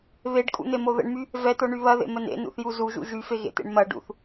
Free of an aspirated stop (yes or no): yes